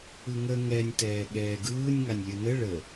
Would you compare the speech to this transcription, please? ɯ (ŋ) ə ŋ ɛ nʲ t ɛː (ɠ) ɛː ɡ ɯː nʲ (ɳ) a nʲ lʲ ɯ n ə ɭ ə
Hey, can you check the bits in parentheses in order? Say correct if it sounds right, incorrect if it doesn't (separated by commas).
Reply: correct, correct, incorrect